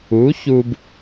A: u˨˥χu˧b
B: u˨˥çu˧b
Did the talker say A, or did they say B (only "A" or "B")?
B